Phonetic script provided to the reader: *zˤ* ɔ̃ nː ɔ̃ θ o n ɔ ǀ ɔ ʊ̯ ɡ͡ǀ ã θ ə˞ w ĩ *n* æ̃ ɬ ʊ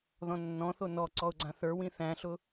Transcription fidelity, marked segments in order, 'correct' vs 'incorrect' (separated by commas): incorrect, incorrect